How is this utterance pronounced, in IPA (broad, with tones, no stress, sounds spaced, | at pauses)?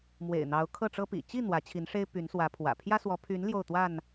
m w ḛ˨˩ ɪ̯ n̪ ɑ˨˦ ʊ̯ kʰ ɤ˥˨ ʈ͡ʂ ɤ˦ p ḭ˨˩ t͡ɕ i˥˨ n̪ w ä˨˦ t͡ɕʰ i˨˦ n ʂ e˦ ɪ̯ p y˨˦ n s w ä˨˦ pʰ w ä̰˨˩ pʰ j ä˦ s w ɔ˨˦ pʰ y˨˦ n l j o˥˨ ʊ̯ t̪ w a˥˨ n